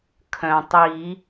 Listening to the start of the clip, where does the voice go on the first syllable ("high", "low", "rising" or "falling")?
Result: low